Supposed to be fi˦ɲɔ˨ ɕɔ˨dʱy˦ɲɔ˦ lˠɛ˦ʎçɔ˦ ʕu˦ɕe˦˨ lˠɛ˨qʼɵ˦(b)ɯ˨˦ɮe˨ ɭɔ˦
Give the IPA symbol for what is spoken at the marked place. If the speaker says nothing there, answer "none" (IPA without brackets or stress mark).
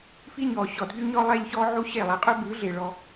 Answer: b